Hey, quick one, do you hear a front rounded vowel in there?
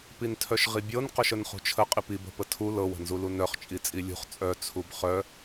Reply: yes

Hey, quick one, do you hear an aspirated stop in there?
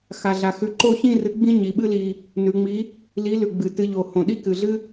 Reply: no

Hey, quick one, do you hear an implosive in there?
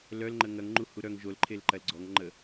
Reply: no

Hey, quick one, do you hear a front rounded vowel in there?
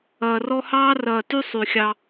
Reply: yes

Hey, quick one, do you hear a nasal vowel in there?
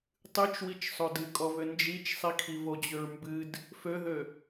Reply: no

